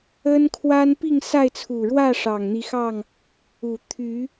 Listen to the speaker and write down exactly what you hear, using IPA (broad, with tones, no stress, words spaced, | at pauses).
ə˦nkʰwa˦n pi˥˨ŋsa˥˨ɪ̯t͡sʰu˨˩ɻwä˥˨ ʂɑ˨˩ŋn̪i˨˦xɑ˥˨ŋ | u˨˩t̪ʰy˨˦